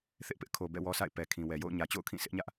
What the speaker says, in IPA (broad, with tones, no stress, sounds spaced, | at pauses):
θ ɪ˦ ʔ p ɪ˦ ʔ kʰ o˨ b ɛ̰˦˨ w ɔ˦ sʰ a̰˦˨ ɪ̯ p ɛ˨ kʰ ĩ˨ w ɛ˨ j o̰˦˨ ʊ̯ ɲ ä˨ t͡ɕ o̰˦˨ ʊ̯ kʰ ĩ˦˨ sʰ ɪ˦ ʔ ɲ ä˦ ʔ